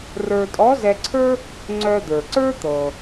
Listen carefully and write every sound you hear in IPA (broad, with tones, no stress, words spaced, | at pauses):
rə˞˧tʼɔ˧˥zɛ˧ǀʰə˞˥ | ŋ͡ǀœ˧d̪ə˞˩ǀə˞˥ t̪ɤ˩